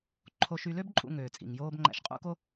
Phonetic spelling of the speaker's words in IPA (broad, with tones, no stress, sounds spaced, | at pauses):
ǃʰ o˧ ʃ y˧ l ø˥ b ǃʼ ṵ˧ ŋ øː˩ t͡sʼ ḭ˩ ŋ j oː˧ b ŋ͡ǃ æ̰˧ ʃ qʼ ṵ˥ k o˥